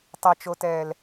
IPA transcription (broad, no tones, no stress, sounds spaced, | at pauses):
tˤ ɛ t͡ʃ o t ɛː l